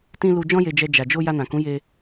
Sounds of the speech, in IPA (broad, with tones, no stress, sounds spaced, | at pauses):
t ĩ˧ l u˧ d͡ʒ ɔ̃˦ j e˧ d͡ʒ ɛ˧ d͡ʒ a˨ d͡ʒ o˧ j a˧ n ã˨ k ũ˨˦ j e˧